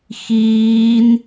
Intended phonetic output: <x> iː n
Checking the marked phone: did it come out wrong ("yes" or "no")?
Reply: no